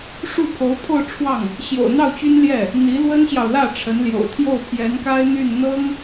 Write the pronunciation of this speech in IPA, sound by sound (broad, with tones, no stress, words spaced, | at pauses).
ʂu˥˩pʰo˧˥ʊ̯pʰo˥˧ʊ̯ʈ͡ʂʰwɑ˥˩ŋ | ɕjo̰˨˩ʊ̯n̪ɑ˥˩ʊ̯t͡ɕy˥nljɛ˥˩ | n̪i˧˥lwə˥nɕjɑ˨ʊ̯lä˥˩ ʈ͡ʂʰə˧˥nljo̰˨˩ʊ̯ t̪ʰjo˥˩ʊ̯pʰjɛ˧˥nka˥ɪ̯ n̪y˥˩n n̪ɤ˥ŋ